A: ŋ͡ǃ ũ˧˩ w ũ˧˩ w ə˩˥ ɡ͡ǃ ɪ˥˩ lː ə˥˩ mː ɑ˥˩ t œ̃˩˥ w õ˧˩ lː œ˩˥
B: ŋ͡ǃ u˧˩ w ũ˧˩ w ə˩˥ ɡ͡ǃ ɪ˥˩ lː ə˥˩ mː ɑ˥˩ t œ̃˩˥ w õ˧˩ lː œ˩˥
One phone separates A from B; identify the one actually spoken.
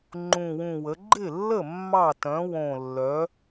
A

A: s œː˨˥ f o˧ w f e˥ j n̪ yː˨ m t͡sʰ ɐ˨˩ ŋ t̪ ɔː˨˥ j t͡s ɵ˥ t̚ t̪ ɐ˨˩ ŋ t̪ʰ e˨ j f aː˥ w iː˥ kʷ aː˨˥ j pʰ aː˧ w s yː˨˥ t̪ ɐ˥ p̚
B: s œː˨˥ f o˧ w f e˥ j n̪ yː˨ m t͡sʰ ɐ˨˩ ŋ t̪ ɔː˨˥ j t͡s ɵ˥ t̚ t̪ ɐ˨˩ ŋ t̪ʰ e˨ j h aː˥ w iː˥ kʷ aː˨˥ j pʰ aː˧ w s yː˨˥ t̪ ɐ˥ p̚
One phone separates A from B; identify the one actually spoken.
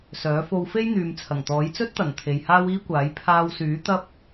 B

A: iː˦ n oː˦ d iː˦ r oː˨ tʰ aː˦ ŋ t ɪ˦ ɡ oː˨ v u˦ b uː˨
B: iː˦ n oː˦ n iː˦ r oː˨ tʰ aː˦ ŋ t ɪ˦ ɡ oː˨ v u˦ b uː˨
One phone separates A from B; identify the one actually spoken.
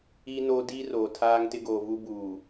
A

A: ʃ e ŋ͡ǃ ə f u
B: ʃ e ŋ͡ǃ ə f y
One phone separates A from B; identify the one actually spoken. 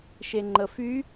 B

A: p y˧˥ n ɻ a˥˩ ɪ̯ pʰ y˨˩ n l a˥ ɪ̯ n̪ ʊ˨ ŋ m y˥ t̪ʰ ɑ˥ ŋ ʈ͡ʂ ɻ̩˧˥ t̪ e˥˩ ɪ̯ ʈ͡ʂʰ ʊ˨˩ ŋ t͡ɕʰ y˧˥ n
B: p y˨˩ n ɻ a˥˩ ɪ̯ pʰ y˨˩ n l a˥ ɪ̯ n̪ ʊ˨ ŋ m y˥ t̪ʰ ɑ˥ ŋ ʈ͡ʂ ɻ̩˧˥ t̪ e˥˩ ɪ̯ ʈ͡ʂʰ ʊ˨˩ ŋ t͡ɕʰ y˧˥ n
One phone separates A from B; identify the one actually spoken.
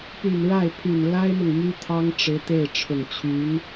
B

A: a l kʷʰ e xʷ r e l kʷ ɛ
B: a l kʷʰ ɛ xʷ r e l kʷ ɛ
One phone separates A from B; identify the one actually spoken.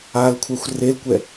B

